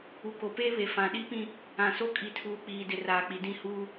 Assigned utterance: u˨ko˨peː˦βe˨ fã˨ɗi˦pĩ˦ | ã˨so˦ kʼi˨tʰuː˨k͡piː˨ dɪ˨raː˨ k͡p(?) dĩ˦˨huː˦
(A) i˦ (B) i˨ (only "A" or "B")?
B